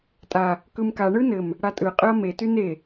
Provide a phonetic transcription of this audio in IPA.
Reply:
tʼa | kɯmka ɳɯnɘm | ɽatʼɯ qʼɯɐ̯me tyne

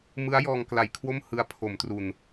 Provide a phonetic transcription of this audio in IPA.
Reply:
mɯ˦˥a̯jɔː˧ŋkla˨˩jkʰwo˥˩m hɯ˦˥a̯pʰo˩˦m tru˨˩n

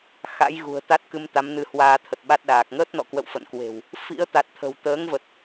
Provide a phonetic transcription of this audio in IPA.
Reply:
xa̰˧˥jɣṳ˨˩ə̯t̪a˦˥t̚ kɨ˧mt̪a˨˦mnɨ˧ hwaː˧t̪ʰə˨˩t̚ɓa˦˥t̚ɗaː˨˩k̚ ŋəː˦˥t̚nɔ̰˧˨kwə̰˧˨w fə̰˧˨nkwe̤˨˩w | fḭ˧˥ə̯t̪a˨˩t̚t̪ʰə̤˨˩w t̪əː˨˦ŋvə˨˩t̚

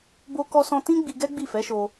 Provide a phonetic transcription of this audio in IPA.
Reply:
bo˦kɔ˦sɔ̃˦ tĩ˦ɡ͡bi˧ ɡɛ˦ɡ͡bi˦˨fɛ˨˦ʃo˧

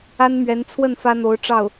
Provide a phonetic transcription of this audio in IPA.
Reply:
a˥nmɥɛ˧˥nt͡sʰwə˥˩n fä˥n̪o˧˥ʊ̯ʈ͡ʂɑ˥˩ʊ̯

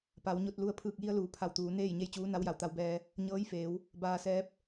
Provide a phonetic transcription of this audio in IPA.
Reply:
pa˩˧wɲo˧t̚lu˧ə̯ pʰɯː˧˩k̚ji˧ə̯luː˩˧ pʰa˧˩wt̪uː˩˧ neː˥˨jɲe˥˨jt͡ɕuː˧˥ na˧˥wja˩˧wt̪a˧wbɛː˧ | ɲɤː˧˥jfeː˩˧w | baː˧sɛː˧˥p̚

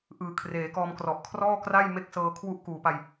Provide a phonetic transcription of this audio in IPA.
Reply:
ʔɯː˩˦kʰreː˩˦kɔː˧mkrɔ˨˩ʔ kʰrɔː˥˩kra˥˩j me˥˩k̚sɤː˧kʰwu˥˩ʔ kuː˨˩pa˧j

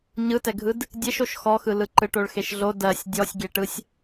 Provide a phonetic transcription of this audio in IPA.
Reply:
ɲɯtɛɡʱɯd | dʲeʃoʃ xɔxɯlɯ ǃɯʈoɭxeʃɮo dɜsʲ dʲɔsʲɡʲeʈɯsʲ

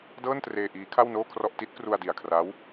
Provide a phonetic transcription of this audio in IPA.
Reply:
dɤː˥˩ntreː˧ ʔiː˦˥kʰa˥˩wnoː˥˩kʰrɔ˥˩ʔ ti˦˥t̚kru˧a̯ di˨˩a̯kʰra˦˥w

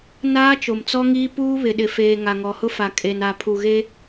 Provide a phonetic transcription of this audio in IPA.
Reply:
naː˦t͡ʃo˨mt͡sɔ˦ŋiː˦ puː˦βɪ˨ɗɪ˨feː˨ ŋa˨ŋɔ˨hʊ˦fa˨ kʼe˨na˨ pʰu˨ɣe˦

